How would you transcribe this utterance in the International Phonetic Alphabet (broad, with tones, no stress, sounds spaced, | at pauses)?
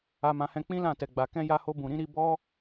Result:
a˧ m ã˧ h ɛ̃˧ k͡p ĩ˦ l ã˦˨ t ɛ˨ ɡ͡b a˨ k ɛ̃˧ j a˧ h o˧ b ũ˨ ɾ ĩ˨˦ ɾ i˧ b ɔ˦